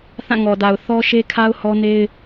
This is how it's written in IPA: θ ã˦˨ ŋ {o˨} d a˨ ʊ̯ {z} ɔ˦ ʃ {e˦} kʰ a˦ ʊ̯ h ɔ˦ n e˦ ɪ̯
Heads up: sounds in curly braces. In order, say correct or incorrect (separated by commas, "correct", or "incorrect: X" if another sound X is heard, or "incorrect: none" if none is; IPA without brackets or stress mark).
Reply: incorrect: ɔ˨, incorrect: θ, correct